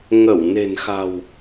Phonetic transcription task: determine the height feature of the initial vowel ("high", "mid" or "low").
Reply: mid